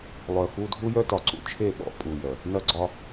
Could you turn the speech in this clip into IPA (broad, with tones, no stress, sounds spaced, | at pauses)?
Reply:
lˠ œ˨ x u˦ dʱ u˦ j œ˦ t ɒ˨ ǀ ṵ˦ t͡ʃʰ e˦˨ ɓ ɔ̰˦ pʼ u˨ j œ˨ | n ɐ˦ ɡ͡ǀ ɒ˦